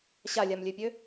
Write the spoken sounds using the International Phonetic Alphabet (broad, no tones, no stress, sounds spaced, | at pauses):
ɕ a lʲ a m lʲ ø pʲ ø